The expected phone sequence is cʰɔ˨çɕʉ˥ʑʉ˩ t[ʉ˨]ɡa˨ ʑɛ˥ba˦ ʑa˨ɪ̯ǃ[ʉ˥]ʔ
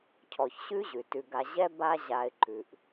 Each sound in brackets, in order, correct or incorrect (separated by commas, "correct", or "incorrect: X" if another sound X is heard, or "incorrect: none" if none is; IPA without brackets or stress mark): correct, incorrect: ʉ˩